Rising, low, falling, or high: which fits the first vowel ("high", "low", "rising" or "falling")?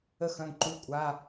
falling